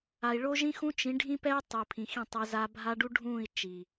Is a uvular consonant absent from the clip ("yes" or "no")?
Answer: yes